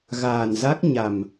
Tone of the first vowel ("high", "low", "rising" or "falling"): low